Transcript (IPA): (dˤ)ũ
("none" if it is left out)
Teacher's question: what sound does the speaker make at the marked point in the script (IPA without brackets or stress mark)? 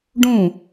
ɖ